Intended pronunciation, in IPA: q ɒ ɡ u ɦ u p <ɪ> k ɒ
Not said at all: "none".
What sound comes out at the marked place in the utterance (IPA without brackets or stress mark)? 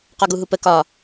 ə